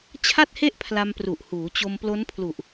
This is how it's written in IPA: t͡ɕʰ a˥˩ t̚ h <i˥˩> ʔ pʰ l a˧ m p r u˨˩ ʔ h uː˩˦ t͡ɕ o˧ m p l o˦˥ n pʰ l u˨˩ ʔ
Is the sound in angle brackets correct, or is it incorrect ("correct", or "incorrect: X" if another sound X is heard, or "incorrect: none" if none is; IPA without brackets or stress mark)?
incorrect: e˥˩